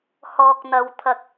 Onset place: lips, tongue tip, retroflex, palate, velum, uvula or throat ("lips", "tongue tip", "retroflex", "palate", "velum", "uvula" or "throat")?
throat